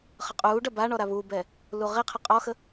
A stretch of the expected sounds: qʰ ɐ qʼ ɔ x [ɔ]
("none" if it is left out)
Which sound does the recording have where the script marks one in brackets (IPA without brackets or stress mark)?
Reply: ə